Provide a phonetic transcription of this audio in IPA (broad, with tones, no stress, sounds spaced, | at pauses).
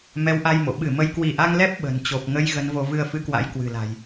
m ɛ˨˦ w ʔ a˧ j m o̰˧˨ ɓ ɨ˧˩ m ə˨˦ j k w i˧˩ ʔ a˧ ŋ l ɛ˦˥ p̚ ɓ ə̤˨˩ n t͡ɕ o˨˩ p̚ ŋ ə˧ j ɣ ə˧ n v o˧ v ɨ˧ ə̯ f ɨ˨˦ k w a̰˧˥ j k w ɨ̤˨˩ l a̤˨˩ j